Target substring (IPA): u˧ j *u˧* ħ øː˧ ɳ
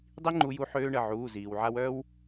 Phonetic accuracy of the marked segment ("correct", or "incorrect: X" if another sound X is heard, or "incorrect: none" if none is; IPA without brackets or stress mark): correct